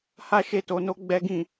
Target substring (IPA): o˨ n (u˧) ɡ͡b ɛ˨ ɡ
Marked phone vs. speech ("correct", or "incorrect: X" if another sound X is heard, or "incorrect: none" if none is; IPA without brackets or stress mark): incorrect: o˧